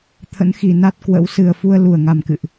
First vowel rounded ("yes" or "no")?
no